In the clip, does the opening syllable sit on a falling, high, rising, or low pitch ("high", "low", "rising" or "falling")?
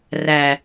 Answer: low